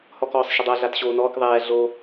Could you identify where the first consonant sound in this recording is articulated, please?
glottal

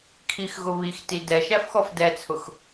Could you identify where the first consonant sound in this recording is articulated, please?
velar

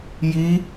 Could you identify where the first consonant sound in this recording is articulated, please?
palatal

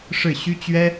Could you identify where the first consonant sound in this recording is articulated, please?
retroflex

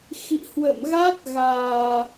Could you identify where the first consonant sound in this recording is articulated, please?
velar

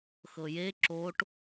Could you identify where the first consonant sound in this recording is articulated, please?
velar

